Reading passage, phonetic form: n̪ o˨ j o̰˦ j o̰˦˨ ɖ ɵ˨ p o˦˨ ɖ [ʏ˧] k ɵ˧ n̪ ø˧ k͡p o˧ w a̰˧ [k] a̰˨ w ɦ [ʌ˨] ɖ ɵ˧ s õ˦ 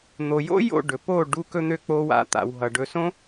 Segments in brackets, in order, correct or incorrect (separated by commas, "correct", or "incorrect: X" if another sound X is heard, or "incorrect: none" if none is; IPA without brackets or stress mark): incorrect: u˧, incorrect: t̪, correct